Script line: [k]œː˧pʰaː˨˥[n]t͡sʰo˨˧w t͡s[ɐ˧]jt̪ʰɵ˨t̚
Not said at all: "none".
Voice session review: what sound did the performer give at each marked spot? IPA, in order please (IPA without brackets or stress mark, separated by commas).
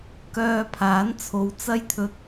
k, n, ɐ˧